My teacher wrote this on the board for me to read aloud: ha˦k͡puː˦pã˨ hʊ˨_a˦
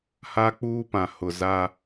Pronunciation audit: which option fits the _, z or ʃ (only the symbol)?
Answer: z